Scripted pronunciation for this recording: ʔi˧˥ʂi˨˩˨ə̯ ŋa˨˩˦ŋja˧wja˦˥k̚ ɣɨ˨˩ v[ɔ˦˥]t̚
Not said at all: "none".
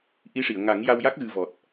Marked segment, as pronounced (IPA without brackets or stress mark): ɔ˨˩